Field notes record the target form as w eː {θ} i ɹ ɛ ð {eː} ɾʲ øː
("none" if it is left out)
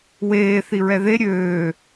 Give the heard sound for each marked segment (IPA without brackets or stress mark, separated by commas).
θ, e